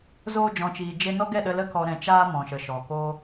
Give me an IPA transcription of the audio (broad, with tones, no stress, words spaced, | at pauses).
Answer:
zoː˧d͡ʒɔ̃˨t͡ʃiː˨d͡ʒe˧ nɔ˦ɡɛ˦˨ɗə˧ lə˧kɔ˨ ɾɛ̃˨t͡ʃaː˧ mɔ̃˨ʃə˨ʃɔ˨ ko˦